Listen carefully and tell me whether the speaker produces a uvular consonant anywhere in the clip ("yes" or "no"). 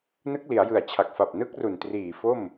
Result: no